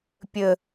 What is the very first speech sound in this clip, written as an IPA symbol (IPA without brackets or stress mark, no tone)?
pʲ